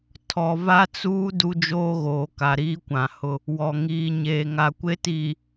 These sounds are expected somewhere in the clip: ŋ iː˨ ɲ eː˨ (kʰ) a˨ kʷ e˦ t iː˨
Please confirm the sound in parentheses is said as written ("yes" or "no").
no